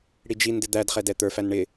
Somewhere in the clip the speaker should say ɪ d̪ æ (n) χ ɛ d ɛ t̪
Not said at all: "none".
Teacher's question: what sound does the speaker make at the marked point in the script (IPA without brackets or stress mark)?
d